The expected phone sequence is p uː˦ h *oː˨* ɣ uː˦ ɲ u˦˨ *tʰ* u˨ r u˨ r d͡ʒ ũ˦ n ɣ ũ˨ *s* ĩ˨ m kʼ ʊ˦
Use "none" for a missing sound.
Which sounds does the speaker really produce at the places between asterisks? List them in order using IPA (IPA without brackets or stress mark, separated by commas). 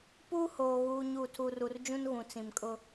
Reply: oː˨, tʰ, t͡s